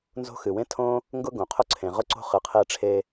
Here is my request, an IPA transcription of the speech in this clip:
n z o̤˥ x ɨ˩ w ẽ˥ tʰ õ˥ | ŋ ɡ ʊ˥ ɡ õ˩ qʰ ʊ˥ ǀʰ ẽ˩ ʁ ʊ˥ ǀ o̤˥ χ ɨ˩ qʰ e˥ ʈ͡ʂʰ e˥

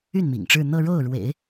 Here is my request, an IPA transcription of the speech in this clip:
y˥˩ n m ḭ˨˩ ŋ ʈ͡ʂ ɻ̩˥˧ n̪ ɤ˥˧ ɻ o˥˩ ʊ̯ ɻ w ḛ˨˩˦ ɪ̯

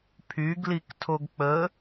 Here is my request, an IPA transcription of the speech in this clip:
pʰ y ɡ l i k tʰ o ɡ k͡p ə

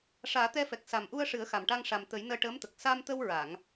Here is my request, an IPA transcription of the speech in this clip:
ʂ aː˨˩˦ t̪ ɛ˧ f ɛ˨˩ k̚ s a˨˩ m ʔ u˧ ə̯ ʂ ɨ˨˩˦ ə̯ x a˨˩ m ʈ a˧ ŋ ʂ a˨˩ m t̪ ə˨˩˦ j n əː˧ ʈ əː˧˥ m t̪ ə˨˩ k̚ s a˧ m t̪ ə˧ w ɹ a˨˩˨ ŋ

